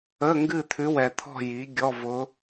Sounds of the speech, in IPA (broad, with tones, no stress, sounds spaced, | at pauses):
ə˧˥˧ ŋ ɡ ɨ˥˧ t̪ʰ ʉ˧˥ w ɛ˨ t̪ʰ ɔ̤˥˧ j i˩˥ ɡʲ ɔ˧˥˧ v ʊ˧˥